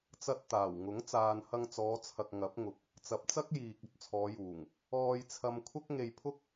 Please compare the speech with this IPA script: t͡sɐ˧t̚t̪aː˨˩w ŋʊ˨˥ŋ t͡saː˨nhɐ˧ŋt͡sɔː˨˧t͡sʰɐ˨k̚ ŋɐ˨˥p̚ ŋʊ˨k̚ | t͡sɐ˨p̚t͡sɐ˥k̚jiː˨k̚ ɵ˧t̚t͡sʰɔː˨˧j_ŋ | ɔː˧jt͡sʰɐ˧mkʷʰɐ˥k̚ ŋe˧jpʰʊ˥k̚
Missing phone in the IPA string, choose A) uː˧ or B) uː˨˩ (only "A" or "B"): B